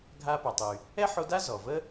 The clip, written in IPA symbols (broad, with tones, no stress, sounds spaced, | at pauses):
ɡʱ a˧ p a˩ tˤ y˩ | ɛ˥ ħ o˧ d a˥ z ɔ˩ v ə˥